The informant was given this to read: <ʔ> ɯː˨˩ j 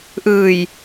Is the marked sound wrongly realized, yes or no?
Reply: no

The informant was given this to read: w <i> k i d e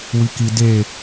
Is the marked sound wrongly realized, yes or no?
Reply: no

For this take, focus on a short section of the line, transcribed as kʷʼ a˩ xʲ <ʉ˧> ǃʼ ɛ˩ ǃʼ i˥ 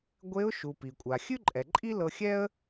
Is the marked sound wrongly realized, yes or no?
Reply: yes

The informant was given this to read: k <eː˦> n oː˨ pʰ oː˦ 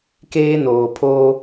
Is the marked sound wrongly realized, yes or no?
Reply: no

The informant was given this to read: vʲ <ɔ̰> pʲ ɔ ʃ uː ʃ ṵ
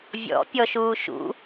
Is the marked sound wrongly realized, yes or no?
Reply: no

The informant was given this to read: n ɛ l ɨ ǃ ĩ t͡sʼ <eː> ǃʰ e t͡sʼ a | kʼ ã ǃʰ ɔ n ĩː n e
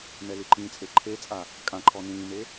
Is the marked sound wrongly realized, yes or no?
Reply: yes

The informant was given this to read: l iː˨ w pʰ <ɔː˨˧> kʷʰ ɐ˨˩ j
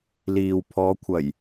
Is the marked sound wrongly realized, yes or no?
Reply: no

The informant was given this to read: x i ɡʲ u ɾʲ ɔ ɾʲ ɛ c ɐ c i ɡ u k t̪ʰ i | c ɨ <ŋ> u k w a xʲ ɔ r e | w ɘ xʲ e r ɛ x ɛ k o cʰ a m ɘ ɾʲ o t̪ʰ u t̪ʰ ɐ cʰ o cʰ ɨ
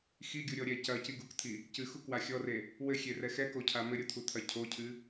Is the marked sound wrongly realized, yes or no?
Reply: yes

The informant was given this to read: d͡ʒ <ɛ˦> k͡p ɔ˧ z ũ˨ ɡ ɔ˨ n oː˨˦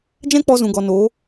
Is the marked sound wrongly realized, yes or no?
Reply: yes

